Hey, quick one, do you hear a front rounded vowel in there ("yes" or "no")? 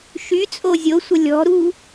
yes